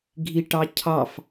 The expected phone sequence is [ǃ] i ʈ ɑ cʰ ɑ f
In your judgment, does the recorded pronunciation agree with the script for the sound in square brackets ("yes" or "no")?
no